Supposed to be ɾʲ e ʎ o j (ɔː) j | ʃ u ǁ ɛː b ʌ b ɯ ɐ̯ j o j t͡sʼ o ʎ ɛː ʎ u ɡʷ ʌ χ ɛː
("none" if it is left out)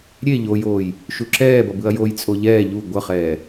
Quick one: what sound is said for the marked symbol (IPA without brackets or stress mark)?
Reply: oː